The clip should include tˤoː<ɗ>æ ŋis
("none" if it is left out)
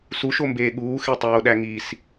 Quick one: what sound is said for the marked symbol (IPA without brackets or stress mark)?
ɗ